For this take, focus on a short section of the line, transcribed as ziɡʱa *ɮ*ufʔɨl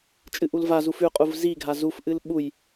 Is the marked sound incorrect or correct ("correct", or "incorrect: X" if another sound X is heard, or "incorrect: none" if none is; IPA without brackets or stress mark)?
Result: incorrect: z